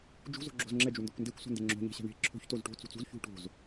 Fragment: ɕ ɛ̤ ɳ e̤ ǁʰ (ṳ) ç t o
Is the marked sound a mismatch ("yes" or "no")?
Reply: yes